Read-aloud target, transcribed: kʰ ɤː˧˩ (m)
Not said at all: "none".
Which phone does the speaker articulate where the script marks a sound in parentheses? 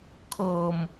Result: m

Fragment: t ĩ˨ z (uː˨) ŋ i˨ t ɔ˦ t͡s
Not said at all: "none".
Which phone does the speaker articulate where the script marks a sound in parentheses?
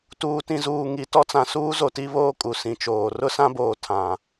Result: uː˨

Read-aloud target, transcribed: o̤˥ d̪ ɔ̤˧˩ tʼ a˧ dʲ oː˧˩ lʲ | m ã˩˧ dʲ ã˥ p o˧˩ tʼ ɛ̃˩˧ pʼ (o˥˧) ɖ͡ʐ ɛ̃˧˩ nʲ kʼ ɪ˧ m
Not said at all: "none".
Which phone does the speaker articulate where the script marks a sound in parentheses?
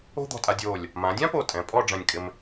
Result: ɔ˥˧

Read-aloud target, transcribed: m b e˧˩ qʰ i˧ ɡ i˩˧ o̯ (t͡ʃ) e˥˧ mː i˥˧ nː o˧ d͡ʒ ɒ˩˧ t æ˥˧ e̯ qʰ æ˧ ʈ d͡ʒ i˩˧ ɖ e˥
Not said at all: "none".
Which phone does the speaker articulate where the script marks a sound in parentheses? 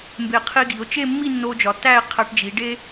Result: t͡ʃ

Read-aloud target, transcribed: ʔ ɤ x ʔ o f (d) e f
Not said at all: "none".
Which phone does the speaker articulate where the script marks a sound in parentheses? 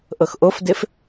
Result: d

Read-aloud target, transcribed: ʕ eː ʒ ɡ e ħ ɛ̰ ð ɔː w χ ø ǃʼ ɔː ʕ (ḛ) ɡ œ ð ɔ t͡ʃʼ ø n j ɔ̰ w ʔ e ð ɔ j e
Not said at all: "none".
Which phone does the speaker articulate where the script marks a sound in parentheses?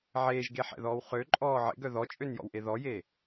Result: ḛ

